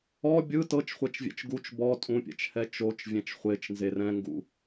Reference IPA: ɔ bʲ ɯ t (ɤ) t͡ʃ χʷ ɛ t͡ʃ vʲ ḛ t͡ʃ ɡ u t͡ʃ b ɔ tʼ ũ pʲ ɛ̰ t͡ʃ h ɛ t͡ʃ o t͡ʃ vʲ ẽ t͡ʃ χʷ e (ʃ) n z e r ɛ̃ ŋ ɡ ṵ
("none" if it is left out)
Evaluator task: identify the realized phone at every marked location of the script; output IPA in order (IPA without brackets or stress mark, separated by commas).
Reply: ɤ, t͡ʃ